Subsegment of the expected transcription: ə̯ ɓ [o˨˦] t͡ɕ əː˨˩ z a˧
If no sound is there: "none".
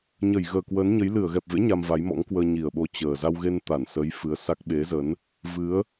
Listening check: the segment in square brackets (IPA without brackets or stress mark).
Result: o˨˦